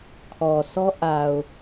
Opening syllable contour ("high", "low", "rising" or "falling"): low